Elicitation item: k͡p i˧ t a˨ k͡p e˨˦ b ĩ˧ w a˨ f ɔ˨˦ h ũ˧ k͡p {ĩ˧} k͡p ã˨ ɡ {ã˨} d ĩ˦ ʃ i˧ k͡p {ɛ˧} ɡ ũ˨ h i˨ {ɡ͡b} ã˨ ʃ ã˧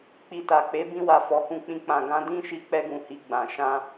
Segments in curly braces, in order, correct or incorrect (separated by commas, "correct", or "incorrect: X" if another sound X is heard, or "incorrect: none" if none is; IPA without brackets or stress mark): correct, incorrect: ã˧, correct, correct